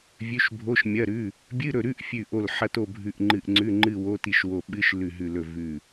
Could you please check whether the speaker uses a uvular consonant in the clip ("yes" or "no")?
no